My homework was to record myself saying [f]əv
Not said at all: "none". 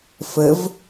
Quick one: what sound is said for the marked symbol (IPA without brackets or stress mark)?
f